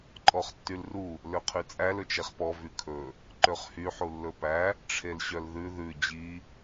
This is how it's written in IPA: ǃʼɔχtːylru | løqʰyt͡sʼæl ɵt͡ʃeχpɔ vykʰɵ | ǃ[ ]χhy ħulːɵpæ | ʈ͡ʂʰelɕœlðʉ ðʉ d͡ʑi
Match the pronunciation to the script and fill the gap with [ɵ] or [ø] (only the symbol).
ø